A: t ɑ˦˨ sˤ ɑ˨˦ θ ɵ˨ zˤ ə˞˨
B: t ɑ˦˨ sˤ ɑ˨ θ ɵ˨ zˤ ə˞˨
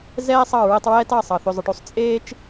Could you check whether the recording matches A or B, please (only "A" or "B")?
B